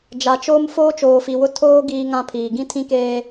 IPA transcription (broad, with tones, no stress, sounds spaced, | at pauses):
d͡ʒ a˨ t͡ʃ oː˦ m f oː˦ t͡ʃ oː˨ f i˨ w ʊ˦ tʰ oː˦ ɡ iː˦ ŋ ã˦ pʰ iː˨ ɡ ĩ˦ tʰ ĩ˦ k eː˦